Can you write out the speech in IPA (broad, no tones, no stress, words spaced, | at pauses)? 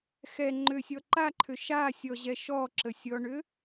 xɛ ŋ͡ǃʏsʲɔ ǃaǃʰʏ ʃasʲɔʑɛ ʃɔǁəsʲɔɳʏ